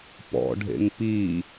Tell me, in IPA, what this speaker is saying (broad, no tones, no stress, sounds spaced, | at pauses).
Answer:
p ɔ̰ ɖʱ ḛ ŋ p i